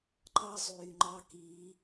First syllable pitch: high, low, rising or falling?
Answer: high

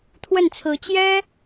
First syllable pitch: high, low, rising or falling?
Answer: falling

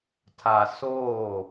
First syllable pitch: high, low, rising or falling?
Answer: low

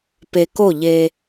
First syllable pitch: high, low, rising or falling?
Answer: low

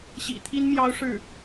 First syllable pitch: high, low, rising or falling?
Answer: low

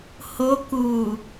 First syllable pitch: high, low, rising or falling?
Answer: rising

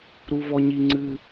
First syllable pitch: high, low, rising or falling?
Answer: high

